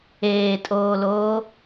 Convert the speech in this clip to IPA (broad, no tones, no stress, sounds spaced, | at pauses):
eː tʼ oː l oː